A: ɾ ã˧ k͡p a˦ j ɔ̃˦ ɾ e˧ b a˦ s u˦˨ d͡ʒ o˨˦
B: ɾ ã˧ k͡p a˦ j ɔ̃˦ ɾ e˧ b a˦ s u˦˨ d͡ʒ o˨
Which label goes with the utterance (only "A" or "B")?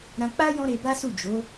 A